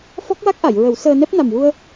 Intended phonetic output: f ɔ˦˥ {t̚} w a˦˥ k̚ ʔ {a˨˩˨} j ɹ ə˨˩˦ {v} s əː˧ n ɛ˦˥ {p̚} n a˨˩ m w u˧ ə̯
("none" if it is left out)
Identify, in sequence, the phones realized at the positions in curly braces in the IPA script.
k̚, a˨˩˨, w, p̚

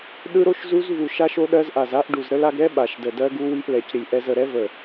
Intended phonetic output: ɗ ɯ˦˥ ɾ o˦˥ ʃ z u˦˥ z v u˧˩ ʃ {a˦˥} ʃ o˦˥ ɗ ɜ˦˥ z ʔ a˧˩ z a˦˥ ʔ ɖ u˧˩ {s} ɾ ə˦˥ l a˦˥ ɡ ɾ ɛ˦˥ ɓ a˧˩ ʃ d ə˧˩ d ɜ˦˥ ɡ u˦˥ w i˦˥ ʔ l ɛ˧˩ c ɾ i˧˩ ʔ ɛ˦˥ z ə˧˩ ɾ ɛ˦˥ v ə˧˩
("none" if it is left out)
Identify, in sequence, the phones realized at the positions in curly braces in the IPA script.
a˦˥, z

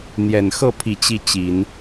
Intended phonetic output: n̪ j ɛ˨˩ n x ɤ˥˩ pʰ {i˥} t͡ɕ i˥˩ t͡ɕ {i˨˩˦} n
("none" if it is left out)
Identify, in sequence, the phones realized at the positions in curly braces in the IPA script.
i˨˩, i˨˩˦

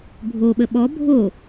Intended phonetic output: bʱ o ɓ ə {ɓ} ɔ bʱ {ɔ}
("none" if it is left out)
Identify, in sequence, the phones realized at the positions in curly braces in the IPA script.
ɓ, o

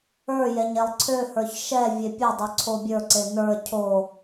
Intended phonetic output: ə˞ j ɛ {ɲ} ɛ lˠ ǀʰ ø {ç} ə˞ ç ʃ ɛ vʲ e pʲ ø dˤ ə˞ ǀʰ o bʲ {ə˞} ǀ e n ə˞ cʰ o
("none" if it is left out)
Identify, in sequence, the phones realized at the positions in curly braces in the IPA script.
ɲ, h, ə˞

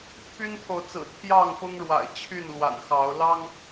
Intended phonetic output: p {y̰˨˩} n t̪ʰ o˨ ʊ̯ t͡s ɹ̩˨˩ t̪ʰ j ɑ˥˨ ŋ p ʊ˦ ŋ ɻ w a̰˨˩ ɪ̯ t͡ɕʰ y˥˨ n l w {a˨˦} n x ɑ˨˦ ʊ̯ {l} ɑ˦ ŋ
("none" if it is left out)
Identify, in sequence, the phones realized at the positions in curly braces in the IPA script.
y˦, a̰˨˩, l

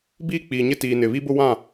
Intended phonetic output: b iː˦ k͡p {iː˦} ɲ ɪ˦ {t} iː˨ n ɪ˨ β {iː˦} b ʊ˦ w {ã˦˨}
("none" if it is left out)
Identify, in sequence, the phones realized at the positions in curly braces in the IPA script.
iː˨, t, i˦, ã˦˨

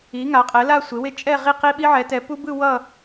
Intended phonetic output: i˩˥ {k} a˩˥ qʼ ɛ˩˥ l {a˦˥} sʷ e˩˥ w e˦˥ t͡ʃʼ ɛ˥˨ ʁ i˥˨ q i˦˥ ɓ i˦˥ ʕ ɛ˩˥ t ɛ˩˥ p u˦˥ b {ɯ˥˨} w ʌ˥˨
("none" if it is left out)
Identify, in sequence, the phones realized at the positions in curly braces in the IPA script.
ŋ, a˥˨, ɯ˥˨

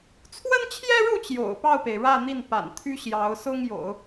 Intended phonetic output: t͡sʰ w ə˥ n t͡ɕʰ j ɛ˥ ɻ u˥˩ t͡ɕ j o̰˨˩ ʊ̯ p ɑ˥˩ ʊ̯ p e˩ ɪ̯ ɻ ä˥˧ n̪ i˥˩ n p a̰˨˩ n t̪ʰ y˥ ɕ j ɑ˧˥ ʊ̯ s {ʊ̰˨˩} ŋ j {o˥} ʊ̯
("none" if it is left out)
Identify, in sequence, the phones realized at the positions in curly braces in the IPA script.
ʊ˥, o̰˨˩˦

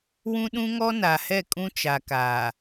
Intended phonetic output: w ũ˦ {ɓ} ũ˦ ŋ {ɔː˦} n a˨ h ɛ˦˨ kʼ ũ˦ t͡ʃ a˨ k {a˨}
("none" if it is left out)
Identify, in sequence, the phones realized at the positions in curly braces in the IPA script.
ɗ, ɔ˦, aː˨

